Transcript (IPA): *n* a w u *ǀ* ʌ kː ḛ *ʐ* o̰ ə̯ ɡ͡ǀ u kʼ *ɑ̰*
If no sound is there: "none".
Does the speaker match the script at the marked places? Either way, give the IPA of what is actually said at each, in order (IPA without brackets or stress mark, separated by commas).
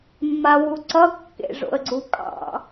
mː, ǀ, ʐ, ɑ̰